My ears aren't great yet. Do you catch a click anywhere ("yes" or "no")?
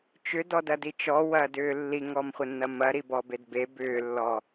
no